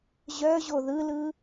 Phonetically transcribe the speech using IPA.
ʑ œ ʑ o ð ɯ l ɯ

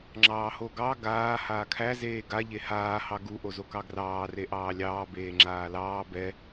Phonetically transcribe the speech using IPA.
ŋ͡ǁ ɑː h o ɡ ɑ ɡ aː h aː kʰ æ z eː ɡ a ʎ e h aː h ɑ ɡ u ʔ o z o k ɑ ɡ r ɑː r e ʔ ɑː lʲ ɑː b eː ŋ͡ǁ aː l ɑː b ɛ

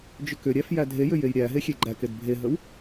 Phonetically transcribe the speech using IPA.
d͡ʒ ʏ k ʏ ɾʲ æ f j æ dʱ e j ʏ j e j ɾʲ æ ɦ e xʲ e ɡ͡ǃ æ k e d bʱ e ɦ ə w

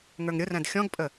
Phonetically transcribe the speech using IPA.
ŋ ə˞ ŋ ɾʲ ʊ r æ̃ d xʲ ɔ̃ ɡ pʼ ə

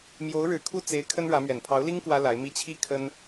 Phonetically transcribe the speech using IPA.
m j o˧˥ ʊ̯ ɻ ɻ̩˨˩ kʰ u˥˩ t͡s e˧˥ ɪ̯ kʰ ə˥ n ɻ ä˧˥ m ɥ ɛ˨˩ n pʰ ɑ˧˥ ʊ̯ l i˥ ŋ k w ä˥ l a˧˥ ɪ̯ m i˥ t͡ɕʰ i˥ kʰ ə˥ n

